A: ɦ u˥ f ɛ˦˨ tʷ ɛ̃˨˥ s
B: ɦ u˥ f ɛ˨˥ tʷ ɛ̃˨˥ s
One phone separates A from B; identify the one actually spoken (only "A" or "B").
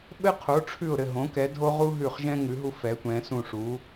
B